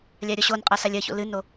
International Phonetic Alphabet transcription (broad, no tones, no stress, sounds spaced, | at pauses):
lʲ a ɾʲ ɔ ɕ o n qʼ ɐ s a lʲ ɐ ç o̰ l ɨ n o